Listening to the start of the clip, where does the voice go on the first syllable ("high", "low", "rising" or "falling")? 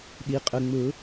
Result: low